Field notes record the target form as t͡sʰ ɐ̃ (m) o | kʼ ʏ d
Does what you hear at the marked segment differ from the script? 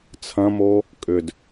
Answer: no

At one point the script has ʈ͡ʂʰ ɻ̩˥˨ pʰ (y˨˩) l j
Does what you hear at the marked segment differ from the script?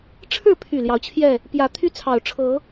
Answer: no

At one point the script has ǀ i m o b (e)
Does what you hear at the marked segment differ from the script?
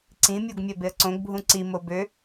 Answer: yes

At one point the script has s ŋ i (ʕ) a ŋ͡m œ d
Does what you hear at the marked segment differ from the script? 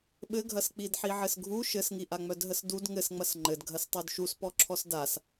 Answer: yes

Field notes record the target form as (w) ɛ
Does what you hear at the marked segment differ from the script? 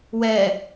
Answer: no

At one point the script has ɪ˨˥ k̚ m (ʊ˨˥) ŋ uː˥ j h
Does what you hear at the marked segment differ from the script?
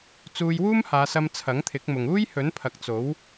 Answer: yes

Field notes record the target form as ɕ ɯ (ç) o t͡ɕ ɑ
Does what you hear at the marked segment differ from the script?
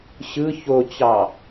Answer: no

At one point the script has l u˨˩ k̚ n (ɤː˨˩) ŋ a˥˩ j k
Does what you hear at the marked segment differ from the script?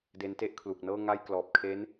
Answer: yes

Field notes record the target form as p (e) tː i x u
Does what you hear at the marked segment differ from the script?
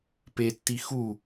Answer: no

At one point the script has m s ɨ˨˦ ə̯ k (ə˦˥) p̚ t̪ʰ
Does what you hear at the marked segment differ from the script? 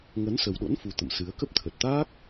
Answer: no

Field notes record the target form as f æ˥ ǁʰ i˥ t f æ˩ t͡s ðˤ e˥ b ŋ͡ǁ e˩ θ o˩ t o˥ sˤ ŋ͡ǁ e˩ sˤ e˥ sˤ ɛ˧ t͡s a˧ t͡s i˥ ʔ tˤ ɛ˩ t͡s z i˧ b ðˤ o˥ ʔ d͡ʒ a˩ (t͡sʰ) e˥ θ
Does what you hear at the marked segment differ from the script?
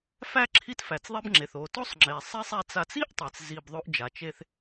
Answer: yes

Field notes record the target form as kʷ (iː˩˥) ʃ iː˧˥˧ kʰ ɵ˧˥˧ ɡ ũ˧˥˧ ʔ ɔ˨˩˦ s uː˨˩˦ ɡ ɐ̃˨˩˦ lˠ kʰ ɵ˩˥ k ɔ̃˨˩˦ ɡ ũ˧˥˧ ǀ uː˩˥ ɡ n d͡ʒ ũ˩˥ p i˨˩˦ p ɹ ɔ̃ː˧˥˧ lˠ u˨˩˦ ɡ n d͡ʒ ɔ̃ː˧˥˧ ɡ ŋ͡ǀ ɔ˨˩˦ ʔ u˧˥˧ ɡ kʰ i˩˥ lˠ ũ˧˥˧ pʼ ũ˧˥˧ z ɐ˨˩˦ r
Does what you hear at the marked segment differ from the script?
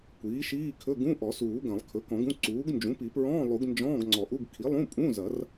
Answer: no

